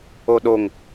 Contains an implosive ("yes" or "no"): yes